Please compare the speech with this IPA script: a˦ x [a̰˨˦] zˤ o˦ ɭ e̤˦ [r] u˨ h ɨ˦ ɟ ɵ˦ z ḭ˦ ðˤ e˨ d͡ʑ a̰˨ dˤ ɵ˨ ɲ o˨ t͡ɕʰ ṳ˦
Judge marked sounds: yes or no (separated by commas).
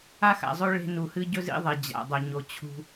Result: no, no